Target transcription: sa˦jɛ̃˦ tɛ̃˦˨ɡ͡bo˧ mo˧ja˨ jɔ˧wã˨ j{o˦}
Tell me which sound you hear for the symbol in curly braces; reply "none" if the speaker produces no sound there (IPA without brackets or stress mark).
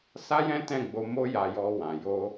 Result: o˧